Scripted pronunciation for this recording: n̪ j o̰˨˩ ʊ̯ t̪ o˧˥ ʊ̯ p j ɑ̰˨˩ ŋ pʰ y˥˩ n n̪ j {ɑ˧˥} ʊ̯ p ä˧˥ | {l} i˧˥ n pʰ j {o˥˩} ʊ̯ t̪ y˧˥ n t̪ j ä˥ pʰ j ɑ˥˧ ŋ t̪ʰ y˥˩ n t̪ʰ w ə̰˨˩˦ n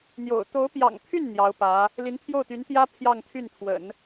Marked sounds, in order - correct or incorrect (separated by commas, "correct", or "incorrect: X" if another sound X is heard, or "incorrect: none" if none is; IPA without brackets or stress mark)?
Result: correct, correct, correct